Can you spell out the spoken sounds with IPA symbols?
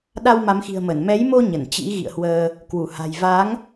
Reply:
ɗ a˧ w m a˨˦ m x i̤˨˩ ə̯ m ə˧˩ n m ɛ˨˦ j m o˧ ɲ ə˧˩ n t͡ɕ ḭ˧˥ ɣ ḭ˧˨ ə̯ h w əː˧ | k w u˧˩ h a̤˨˩ j v a˨˦ ŋ

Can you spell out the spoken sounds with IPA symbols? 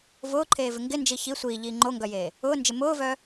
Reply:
v ʊː ǃʰ eː v ɪ ŋ ɡ ɪ n d͡ʒ i ç i sʷ iː ʎ iː ŋ͡ǃ o ŋ ɡ œ j eː | ʊː n d͡ʒ ɪ m ʊː v œ

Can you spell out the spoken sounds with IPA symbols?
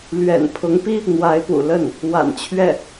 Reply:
l ɥ ɛ̰˨˩ n pʰ ʊ˧˥ ŋ p i˥ | n̪ w a˧˥ ɪ̯ p ṵ˨˩ l ə˥˩ n | w a̰˨˩ n t͡ɕʰ ɥ ɛ˥˩

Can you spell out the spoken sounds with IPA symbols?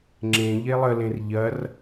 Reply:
ŋ͡ǁ ẽ ʎ e lˠ ə l ẽ r ʎ ɐ r

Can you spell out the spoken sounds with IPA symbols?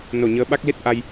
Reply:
n o˧˩ ɲ əː˨˦ ɓ a˦˥ k̚ l i˦˥ t̚ ʔ a˧ j

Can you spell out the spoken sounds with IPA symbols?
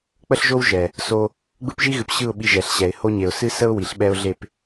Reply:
k͡p ə˦ ɬ ʒ o˦ w ʒ ɛ˨ | s o˦ | ɡ͡b ɯ˦ p ʒ i˦ ɣ ɨ˨ p ɕ ɯ˦˨ ʊ̯ ɓ i˧ ʒ ɛ˨ ɬ ɕ ɛ˨ ɪ̯ h o˦ ɲ e˨ ʊ̯ s ɨ˦ s ə˦ ʊ̯ w i˨ ɬ ɓ ɛ˦ ʊ̯ ɮ e˦˨ p

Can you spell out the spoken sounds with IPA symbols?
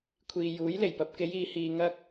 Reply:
kʷʰ iː˨ j uː˨˥ j l e˨˩ j p ɐ˨ p̚ k e˨˧ j iː˨ h iː˨ ŋ ɐ˥ k̚

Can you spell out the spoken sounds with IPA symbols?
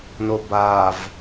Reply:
n o b a v

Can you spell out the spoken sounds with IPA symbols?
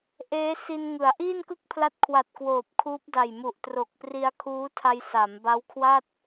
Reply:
ʔ eː˦˥ s i˧ n ŋ ɯ˩˦ a̯ ʔ iː˥˩ n k ɯ˥˩ k̚ pʰ l a˦˥ t̚ kʰ w a˨˩ t̚ k w oː˨˩ p̚ kʰ uː˦˥ p̚ d a˨˩ j m u˨˩ ʔ t r o˨˩ k̚ p r i˧ a̯ kʰ uː˦˥ tʰ a˧ j s a˩˦ m b a˦˥ w kʰ w a˥˩ t̚

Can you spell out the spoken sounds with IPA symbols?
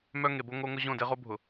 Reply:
m œ˦ ŋ e˨ b o˦ ŋ o˦ ŋ ʊ˦ ʑ õ˦˨ d e˦ ʁ o˦ bʱ ʊ˨

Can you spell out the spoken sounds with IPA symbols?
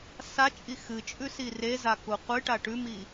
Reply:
s a t͡ʃʼ i x ɨ t͡ʃʼ ʉ s i r e z a k u qʷ ɨ ʈ a ʈ ʉ m i

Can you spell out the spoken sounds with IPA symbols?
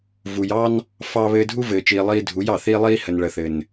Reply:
v u˨ j ɑ˦ n | f ɑ˧ β ɘː˧ dʱ u˦ v ɘː˨ t͡ʃ iː˨ lˠ iː˧ dʱ u˨˦ j ɑ˨ θ iː˦ lˠ iː˦ h ə˨ n ɭ ə˨ θ ɘ˨ n

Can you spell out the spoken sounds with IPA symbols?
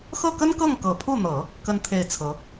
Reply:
x ɤ˥˩ k ə˥ n k ɤ˥˩ ŋ k ɤ˨˩ pʰ u˥˩ n̪ ɤ˨˩˦ | k ə˥ n t̪ʰ e˥˩ ɪ̯ t͡sʰ ɤ˧˥

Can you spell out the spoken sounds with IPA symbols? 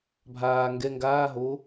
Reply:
bʱ aː ŋ ɡ ɛ ŋ ɡ aː ɦ o

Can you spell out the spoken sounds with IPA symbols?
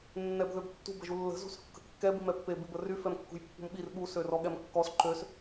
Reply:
nː ɛ b ð ø b tː ṳ b ə ʒ u lː ə̤ z ṳ s kː ə̤ kː ɛ b i m ɛ pː e b i b ə r y f ɛ m kː ṳ j pː ṳ m ɓ i r ɓ u s ø r ɔ ɠ ɛ m kː ɔ s ǃ ø s

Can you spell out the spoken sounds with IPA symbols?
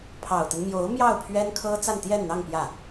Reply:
pʰ ɑ˨˩ ʊ̯ t̪ ə˦ n m j o˧˥ ʊ̯ m j ɑ˥˩ ʊ̯ pʰ ɥ ɛ˥ n kʰ ɤ˥ t͡s a˥˧ n t̪ j ɛ˥˧ n n̪ ɑ˥˧ ŋ p j ä˥˩

